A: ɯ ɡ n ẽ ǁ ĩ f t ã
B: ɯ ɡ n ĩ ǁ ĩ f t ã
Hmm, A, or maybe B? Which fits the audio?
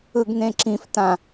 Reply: A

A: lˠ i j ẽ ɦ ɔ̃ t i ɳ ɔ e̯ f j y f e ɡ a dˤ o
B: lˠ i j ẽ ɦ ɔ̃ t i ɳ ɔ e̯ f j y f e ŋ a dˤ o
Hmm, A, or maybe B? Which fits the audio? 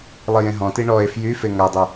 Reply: B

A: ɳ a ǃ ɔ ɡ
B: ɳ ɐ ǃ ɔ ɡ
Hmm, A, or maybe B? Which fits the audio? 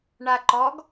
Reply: A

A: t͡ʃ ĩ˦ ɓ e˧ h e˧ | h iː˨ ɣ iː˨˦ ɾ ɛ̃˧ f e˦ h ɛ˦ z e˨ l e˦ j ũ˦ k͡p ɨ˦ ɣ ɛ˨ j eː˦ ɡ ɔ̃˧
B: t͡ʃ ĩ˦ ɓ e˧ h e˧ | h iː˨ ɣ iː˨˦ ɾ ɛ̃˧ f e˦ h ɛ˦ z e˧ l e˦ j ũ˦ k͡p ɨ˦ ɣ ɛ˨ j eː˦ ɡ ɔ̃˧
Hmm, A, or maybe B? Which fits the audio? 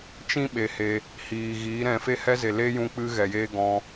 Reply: A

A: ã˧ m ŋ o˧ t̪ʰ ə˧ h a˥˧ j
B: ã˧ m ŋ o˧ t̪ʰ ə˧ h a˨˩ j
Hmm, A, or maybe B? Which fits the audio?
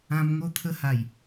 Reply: B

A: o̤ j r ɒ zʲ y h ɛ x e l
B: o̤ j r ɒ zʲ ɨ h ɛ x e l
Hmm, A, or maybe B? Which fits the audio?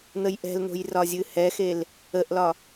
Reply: B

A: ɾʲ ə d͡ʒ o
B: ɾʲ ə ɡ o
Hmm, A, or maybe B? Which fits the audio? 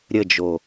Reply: A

